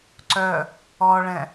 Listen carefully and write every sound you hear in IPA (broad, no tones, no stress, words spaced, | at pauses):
ǀœ | ɔɭɛ̃